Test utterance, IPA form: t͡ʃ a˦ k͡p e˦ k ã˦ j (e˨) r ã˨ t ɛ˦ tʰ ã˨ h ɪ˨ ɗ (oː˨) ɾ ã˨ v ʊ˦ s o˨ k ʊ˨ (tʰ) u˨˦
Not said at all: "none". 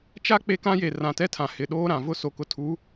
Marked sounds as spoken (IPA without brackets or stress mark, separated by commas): e˨, oː˦, tʰ